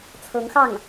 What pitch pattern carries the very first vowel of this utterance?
rising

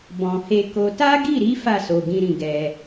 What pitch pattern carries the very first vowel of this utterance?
low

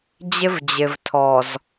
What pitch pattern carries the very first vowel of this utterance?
high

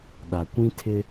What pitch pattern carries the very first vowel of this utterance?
low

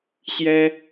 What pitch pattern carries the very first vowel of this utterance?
high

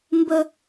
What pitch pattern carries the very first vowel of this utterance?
high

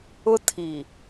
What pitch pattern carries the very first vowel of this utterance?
high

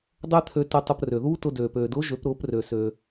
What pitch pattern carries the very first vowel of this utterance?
high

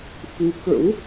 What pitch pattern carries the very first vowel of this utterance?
rising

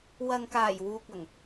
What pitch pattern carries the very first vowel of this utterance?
low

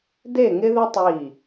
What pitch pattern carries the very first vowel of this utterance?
falling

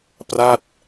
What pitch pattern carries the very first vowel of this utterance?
falling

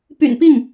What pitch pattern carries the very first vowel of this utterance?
low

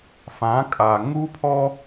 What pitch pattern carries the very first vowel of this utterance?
rising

